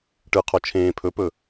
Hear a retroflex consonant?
yes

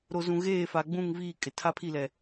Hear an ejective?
yes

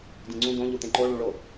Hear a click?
yes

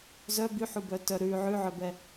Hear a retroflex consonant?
no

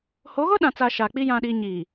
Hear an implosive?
yes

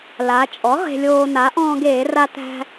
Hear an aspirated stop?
no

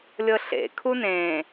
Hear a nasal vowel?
yes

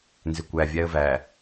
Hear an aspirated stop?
no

